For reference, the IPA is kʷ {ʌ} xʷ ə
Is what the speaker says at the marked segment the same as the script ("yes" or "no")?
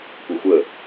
yes